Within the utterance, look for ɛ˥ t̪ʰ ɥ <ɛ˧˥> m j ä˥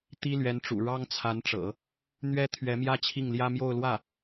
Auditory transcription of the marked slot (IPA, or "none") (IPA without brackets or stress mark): ɛ˧˥